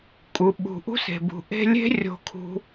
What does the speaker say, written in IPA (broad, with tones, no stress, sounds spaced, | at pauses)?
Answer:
kʼ u˩ ɓ ṳ˩ ʔ ṳ˥ s e̤˩ b ṳ˩ ʔ e̤˦ lʲ e̤˥ rʲ o̤˨ kʰ ṳ˨